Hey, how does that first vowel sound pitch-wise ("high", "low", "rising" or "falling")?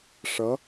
rising